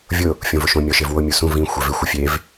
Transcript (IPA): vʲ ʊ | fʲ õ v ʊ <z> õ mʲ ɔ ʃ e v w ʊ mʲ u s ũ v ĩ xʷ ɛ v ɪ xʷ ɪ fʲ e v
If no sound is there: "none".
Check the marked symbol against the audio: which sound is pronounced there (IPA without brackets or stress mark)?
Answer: ʃ